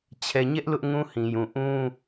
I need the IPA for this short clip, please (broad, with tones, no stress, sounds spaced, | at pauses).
t͡ɕʰ ɛ˨ ɲ ɛ˦ ʔ l ʊ˦ ʔ ŋ ũ˦ h ĩ˨ j ũ˨ ʔ ũ˦